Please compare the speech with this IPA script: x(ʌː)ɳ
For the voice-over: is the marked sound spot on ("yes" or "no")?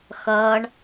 yes